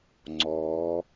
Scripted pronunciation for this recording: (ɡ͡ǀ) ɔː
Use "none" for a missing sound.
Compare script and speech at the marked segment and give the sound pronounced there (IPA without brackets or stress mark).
ŋ͡ǀ